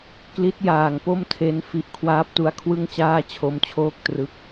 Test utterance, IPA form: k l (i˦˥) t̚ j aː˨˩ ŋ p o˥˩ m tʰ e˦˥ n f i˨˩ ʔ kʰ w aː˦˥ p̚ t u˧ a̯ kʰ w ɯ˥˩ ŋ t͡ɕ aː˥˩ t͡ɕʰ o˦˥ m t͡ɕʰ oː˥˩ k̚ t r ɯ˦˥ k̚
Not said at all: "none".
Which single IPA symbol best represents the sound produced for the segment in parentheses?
i˦˥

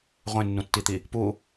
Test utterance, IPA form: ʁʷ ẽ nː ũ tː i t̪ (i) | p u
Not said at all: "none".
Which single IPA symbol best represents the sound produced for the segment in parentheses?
i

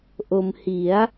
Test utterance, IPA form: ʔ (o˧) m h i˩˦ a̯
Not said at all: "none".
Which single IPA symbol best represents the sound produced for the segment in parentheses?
o˧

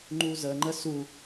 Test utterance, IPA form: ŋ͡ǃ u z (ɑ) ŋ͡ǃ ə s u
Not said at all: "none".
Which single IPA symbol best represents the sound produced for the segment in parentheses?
ə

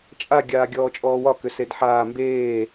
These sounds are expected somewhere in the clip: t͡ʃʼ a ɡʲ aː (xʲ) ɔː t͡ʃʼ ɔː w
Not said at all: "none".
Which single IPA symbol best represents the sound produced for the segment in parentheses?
ɡʲ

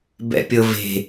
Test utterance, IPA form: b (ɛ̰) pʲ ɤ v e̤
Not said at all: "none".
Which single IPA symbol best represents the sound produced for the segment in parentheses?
ɛ̰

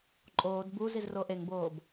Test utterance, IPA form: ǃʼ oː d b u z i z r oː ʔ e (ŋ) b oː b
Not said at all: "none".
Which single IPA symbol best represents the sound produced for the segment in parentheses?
ŋ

